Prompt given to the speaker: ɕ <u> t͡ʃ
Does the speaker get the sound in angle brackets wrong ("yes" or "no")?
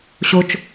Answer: yes